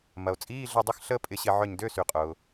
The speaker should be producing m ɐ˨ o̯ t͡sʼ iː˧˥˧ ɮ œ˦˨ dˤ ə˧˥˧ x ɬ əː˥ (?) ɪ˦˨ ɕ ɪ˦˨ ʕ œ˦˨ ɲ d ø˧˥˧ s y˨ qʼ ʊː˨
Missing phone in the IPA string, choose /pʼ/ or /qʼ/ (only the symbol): pʼ